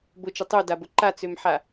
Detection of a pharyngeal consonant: present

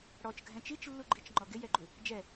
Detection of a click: present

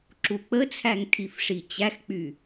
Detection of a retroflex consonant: present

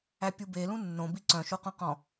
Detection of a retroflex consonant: absent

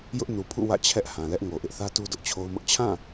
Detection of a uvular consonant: absent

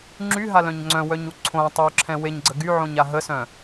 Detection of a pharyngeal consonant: present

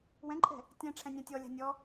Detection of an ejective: present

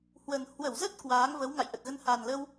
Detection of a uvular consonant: absent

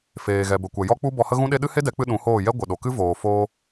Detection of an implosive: present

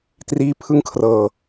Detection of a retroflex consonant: absent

